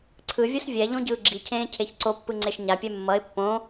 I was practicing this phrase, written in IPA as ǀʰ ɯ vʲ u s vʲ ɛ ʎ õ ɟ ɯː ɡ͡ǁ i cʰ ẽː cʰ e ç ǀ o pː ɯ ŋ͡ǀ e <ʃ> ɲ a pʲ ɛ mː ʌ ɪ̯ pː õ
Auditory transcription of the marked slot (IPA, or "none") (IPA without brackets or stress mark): ʃ